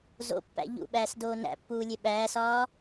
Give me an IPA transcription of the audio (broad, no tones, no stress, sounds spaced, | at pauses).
z o̰ pː æ̰ ʎ ṵ ɓ æː s d oː n æ̰ pː uː lʲ e ɓ æː s ɒː